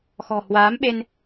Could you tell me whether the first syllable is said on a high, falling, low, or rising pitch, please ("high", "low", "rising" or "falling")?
low